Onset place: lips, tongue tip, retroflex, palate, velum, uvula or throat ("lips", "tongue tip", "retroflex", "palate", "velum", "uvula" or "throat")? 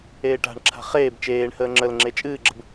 retroflex